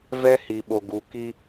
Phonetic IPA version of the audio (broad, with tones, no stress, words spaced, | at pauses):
vɛ˦hi˨ɓo˨ ɡu˨ki˦